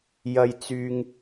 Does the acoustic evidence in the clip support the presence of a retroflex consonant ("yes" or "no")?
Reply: no